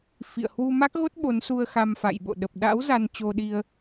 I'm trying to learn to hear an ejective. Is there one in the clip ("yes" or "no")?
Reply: no